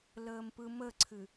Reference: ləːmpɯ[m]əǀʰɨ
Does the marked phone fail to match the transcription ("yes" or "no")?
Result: no